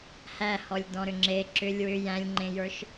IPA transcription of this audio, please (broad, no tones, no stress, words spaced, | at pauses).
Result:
hæhɔlʲ dɔ̃ɾʏŋ͡ǁe ǁʏlʲ wʏ jæ̃lʲŋ͡ǃẽjə˞ʃ